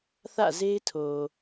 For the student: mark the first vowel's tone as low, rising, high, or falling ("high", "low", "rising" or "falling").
falling